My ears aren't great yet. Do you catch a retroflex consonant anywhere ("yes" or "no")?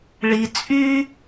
yes